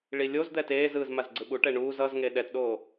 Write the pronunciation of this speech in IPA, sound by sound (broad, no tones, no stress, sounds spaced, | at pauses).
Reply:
ɭ i lʲ o z d̪ ɛ t eː z ɯː z m a z ɡ͡ǀ ɯ ɓ u ʈ ɛ ɳ uː z ʌ z ŋ e ɗ ɛ t ɗ oː